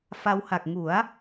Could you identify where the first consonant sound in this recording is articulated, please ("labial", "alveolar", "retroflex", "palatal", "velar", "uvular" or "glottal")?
labial